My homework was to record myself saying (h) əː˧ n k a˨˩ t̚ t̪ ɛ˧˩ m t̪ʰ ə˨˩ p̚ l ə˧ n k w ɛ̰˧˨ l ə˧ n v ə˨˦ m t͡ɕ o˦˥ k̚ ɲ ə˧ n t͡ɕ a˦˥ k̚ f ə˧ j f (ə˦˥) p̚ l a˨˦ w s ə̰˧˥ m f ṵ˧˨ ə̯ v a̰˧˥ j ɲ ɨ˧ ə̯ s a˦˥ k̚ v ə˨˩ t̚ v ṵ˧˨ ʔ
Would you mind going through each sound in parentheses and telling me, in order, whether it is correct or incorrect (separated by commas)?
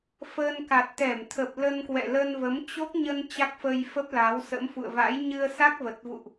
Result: incorrect, correct